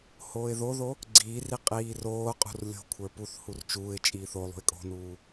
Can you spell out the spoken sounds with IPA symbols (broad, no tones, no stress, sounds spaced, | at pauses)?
h oː ɪ̯ ð o ð o | ɡ͡ǀ iː r i qʼ iː r oː qʼ ṳ r lʲ o̤ kʷʰ ə˞ p u θ h u r t͡ʃ uː ɪ̯ t͡ʃʼ iː θ o lˠ ṳ ɪ̯ kʼ o̤ n uː